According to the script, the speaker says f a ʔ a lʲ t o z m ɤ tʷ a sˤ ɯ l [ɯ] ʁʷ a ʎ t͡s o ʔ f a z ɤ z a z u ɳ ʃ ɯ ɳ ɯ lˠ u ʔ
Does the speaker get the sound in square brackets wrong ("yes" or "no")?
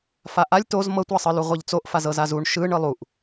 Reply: yes